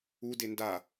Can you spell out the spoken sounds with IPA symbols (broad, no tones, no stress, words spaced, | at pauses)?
u denda